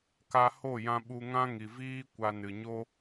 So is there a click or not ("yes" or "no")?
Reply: no